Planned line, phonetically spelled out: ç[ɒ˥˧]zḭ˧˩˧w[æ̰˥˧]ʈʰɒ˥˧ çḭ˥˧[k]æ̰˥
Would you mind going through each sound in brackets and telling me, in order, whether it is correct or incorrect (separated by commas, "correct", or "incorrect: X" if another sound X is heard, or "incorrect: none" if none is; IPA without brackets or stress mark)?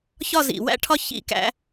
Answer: correct, incorrect: æ̰˥, correct